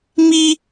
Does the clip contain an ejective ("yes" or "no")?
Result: no